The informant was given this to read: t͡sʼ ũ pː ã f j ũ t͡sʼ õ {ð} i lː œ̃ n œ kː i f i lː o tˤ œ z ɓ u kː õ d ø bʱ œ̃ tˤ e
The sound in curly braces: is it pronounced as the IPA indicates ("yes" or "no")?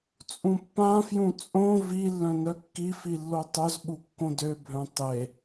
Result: no